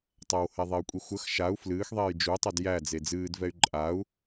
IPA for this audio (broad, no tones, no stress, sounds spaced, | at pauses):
tˤ a w h ɛ ðˤ e y̯ kʷʼ i xʷ ə x ʃ a u̯ f l ɨː x ðˤ eː j d͡ʒ u tˤ e d j æ d͡z e d͡z ɨː d v ɛ y̯ ǃʼ a u̯